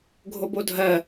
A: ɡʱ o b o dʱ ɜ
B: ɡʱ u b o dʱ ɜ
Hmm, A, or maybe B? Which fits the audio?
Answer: A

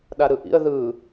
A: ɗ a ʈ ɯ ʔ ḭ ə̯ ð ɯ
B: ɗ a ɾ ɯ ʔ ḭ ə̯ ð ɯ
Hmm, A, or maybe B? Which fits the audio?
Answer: B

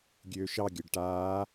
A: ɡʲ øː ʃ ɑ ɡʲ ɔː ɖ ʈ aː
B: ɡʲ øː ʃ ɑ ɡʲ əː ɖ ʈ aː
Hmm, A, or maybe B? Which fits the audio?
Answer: B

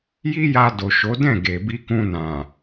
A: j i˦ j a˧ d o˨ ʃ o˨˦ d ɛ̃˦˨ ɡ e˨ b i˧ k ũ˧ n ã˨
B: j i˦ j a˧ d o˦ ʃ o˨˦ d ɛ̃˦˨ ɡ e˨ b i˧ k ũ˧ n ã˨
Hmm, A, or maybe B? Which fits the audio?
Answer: A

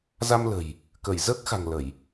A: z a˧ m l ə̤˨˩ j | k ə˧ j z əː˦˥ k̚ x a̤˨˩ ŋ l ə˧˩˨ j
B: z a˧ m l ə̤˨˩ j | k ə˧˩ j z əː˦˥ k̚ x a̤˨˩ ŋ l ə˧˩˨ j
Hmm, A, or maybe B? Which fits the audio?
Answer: B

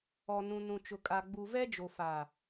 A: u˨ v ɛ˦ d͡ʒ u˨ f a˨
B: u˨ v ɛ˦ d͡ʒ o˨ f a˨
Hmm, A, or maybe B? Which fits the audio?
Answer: B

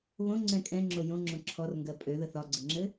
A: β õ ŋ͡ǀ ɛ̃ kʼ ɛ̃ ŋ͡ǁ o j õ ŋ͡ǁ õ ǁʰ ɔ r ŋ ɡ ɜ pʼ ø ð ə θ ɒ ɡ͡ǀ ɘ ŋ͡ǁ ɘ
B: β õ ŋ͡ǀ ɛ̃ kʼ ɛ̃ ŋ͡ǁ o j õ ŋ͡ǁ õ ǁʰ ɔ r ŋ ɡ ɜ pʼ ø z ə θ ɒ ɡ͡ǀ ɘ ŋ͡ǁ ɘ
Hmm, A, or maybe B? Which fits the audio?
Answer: A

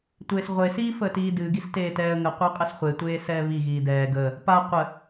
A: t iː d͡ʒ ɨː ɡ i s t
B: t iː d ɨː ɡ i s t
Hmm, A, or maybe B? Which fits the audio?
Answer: B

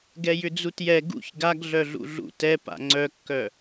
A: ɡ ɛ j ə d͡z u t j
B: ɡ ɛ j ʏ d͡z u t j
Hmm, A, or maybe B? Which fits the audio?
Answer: B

